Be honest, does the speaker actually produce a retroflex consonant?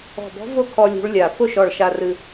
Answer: yes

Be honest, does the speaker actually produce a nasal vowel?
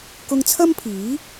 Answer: no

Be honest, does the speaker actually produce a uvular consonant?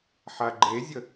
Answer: no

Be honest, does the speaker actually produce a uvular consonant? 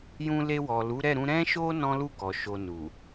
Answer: no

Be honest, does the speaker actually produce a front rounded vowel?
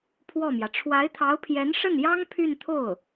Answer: yes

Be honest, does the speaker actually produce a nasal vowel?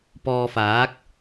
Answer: no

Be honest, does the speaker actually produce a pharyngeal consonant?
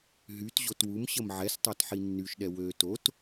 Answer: yes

